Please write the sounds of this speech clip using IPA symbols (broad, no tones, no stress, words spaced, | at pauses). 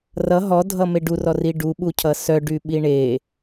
rʌ ɦɔdʱʌme ɖurɔri ɖuɓucʰʌ sœɖyɓi ɳe